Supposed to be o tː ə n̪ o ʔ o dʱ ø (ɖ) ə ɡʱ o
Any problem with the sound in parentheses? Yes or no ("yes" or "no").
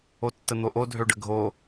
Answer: no